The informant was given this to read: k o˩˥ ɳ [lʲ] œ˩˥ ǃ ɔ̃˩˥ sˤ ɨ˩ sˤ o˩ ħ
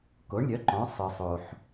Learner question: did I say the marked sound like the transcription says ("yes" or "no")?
yes